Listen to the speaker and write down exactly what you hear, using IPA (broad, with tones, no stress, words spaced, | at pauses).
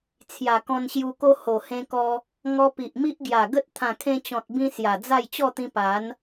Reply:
t͡sʰja˨˩kɔ̃˧nɕju˧ko˦ ho˨˩hẽ˧kɔ˧ | ŋɔ˧pi˨ʔmi˦ʔɡja˨˩ ɡə˦t̚ t̪ʰã˨˩kʰẽ˧t͡ɕɔ̃˨t̚bĩ˧ sja˨˩d͡za˥˧j t͡ɕɔ˥˧t̪ĩ˧ pa˨˦n